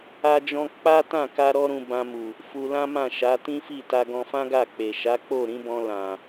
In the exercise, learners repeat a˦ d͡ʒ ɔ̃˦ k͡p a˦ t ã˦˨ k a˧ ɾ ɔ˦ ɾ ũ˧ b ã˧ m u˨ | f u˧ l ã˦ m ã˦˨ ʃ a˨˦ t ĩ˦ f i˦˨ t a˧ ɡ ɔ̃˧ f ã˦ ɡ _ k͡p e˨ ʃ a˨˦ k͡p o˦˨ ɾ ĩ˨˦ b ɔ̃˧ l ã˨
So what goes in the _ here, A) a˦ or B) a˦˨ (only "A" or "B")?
B